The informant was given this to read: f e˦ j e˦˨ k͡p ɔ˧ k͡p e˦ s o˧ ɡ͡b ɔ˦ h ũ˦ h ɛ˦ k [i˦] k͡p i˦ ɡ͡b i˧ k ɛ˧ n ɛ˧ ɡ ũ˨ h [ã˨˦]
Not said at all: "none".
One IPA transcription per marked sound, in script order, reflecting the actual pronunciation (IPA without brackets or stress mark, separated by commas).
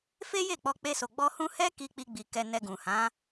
i˦, ã˨˦